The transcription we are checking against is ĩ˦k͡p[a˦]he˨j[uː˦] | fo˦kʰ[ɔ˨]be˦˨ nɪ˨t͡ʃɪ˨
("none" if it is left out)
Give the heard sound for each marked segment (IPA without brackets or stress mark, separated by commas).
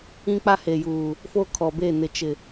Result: a˦, uː˨, ɔ˨